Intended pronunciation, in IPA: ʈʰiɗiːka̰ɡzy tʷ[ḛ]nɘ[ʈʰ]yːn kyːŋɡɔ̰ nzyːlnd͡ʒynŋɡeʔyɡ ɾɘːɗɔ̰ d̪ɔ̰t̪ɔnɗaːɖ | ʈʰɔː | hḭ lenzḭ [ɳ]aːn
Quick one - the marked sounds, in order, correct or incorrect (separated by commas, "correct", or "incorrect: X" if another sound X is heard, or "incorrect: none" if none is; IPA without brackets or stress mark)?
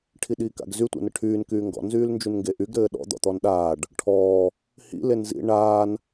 correct, correct, correct